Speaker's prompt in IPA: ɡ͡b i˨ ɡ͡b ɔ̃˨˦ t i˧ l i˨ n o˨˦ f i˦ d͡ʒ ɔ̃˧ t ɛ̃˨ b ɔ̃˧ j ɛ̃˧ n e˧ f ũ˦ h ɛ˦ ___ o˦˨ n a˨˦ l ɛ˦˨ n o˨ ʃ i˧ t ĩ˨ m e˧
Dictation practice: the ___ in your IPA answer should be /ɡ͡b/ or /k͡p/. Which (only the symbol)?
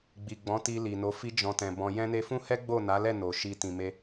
ɡ͡b